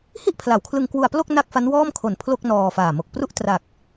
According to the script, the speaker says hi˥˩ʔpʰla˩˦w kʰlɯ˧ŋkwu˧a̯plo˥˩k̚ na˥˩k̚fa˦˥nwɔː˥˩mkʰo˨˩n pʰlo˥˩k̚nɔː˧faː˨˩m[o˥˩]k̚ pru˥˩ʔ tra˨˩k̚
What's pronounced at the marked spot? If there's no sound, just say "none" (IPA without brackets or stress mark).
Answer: o˨˩